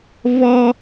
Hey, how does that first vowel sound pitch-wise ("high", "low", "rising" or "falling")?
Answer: high